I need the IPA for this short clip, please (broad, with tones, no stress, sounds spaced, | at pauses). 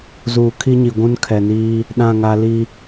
z uː˨ kʰ i˦ ɲ i˨ ɡʷ ũ˦ n kʰ ɛ˨ n iː˦ | ɗ ã˦˨ ŋ a˦ l i˦